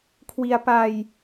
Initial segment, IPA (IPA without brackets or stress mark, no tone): kʰ